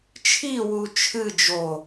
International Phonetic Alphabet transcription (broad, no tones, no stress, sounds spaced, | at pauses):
t͡ʃʰ i w u t͡ʃʰ ɨ d͡ʒ o